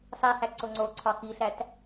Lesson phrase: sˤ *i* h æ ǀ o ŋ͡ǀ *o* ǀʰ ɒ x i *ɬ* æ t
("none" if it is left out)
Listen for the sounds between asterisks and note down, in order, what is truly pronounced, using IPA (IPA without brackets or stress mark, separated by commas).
i, o, ɬ